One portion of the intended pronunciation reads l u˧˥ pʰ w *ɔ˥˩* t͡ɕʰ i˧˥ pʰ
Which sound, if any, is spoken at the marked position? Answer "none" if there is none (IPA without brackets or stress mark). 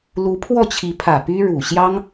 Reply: ɔ˥˩